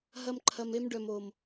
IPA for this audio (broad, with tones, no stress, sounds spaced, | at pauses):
ɦ ɐ˦ m ǃʰ ɐ˧ m e˦ m ɖ œ˨ m o˨ m